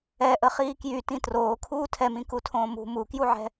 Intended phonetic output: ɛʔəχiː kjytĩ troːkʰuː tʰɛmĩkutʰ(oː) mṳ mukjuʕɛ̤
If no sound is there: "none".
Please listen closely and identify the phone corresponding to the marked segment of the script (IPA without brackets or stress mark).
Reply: õː